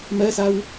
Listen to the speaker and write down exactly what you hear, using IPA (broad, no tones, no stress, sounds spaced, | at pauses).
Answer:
m ɜ s a w